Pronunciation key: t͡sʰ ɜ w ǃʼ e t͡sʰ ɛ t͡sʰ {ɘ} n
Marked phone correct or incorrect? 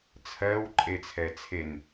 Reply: incorrect: e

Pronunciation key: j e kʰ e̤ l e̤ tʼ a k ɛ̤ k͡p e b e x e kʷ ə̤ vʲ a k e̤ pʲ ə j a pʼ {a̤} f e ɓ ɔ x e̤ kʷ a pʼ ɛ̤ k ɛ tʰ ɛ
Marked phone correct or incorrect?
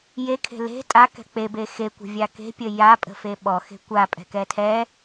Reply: incorrect: ə̤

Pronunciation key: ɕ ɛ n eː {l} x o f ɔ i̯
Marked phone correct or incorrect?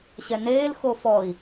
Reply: correct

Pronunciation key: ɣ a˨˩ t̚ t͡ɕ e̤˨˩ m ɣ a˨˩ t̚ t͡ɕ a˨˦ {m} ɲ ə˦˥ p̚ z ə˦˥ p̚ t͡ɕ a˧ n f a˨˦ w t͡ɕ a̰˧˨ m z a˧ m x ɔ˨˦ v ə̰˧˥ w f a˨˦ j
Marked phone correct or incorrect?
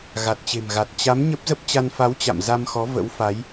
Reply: correct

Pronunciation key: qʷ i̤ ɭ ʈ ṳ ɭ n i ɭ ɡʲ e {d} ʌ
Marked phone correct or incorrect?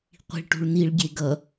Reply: incorrect: ɡ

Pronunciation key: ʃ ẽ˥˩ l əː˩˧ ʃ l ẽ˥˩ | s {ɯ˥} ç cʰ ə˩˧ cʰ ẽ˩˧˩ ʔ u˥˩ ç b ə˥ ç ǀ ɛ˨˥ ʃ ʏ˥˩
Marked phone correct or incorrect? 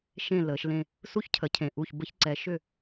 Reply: incorrect: u˥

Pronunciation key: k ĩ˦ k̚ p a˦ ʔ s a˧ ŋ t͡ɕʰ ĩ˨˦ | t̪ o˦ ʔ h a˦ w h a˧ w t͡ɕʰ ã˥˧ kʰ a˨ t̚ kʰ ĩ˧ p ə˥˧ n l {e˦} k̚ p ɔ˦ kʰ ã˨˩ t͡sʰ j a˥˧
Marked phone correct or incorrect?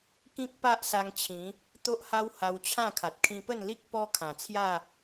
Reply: incorrect: i˦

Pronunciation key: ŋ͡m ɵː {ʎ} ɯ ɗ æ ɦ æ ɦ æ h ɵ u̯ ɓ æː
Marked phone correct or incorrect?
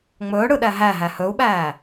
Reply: incorrect: ɽ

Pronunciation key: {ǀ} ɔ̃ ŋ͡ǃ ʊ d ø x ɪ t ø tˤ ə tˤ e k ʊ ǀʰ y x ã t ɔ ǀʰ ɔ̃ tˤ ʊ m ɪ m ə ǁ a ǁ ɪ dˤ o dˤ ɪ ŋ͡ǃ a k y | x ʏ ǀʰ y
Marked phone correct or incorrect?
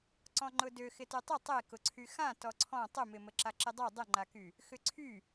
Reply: correct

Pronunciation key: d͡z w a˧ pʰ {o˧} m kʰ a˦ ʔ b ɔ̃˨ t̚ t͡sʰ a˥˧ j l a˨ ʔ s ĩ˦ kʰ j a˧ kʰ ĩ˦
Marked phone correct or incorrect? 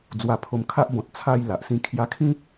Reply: correct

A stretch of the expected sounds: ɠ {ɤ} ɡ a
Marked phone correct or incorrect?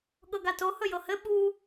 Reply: correct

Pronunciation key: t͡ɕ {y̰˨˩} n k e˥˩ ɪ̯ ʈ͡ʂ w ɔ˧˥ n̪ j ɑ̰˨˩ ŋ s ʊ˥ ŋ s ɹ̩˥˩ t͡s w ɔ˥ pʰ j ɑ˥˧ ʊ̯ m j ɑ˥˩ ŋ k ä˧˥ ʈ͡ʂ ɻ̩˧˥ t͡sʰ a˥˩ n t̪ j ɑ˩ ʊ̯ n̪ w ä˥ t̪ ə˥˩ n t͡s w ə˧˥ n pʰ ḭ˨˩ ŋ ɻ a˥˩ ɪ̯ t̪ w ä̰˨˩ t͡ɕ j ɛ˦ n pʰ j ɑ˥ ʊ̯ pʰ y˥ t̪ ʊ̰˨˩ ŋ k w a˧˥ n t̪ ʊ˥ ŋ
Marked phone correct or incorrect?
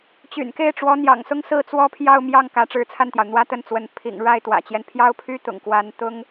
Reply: correct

